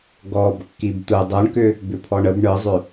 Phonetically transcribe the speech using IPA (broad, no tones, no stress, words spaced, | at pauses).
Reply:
ɡɔb kːibt̪ɯ dˤɯɳkʏ | bʏpʰɔɳəb ɳɯzˤʏ